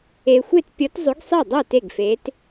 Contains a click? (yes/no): no